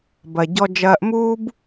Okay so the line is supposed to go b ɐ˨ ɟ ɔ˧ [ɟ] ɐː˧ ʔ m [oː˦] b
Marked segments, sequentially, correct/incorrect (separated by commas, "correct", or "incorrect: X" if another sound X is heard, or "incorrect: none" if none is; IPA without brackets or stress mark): incorrect: d͡ʒ, incorrect: uː˦